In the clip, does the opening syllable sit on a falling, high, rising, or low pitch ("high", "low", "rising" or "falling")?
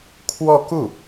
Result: falling